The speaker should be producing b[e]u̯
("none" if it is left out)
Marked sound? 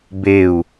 e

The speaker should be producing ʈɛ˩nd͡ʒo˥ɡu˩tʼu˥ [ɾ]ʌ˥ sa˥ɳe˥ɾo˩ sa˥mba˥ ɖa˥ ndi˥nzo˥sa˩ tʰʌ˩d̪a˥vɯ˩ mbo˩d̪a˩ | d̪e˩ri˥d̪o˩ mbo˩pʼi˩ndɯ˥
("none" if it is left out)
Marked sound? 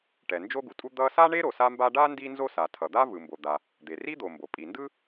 d̪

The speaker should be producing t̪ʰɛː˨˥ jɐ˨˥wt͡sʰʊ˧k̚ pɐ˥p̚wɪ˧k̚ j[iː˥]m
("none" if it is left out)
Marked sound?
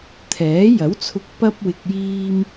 iː˥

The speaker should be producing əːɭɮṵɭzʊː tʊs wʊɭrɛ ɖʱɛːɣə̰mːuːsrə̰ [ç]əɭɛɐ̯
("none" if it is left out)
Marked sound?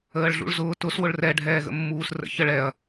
ç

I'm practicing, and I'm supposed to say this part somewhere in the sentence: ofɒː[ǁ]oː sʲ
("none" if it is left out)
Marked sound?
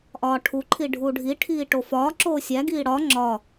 ǁ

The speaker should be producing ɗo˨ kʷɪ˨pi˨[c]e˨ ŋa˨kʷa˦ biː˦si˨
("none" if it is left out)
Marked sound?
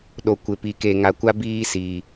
k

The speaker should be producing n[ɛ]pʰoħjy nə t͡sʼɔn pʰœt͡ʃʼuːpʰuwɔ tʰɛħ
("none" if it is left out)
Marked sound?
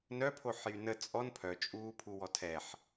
œ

